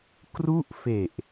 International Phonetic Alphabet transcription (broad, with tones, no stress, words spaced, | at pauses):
kru˥˩ʔfe˨˩ʔ